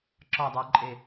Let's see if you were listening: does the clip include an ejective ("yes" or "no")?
yes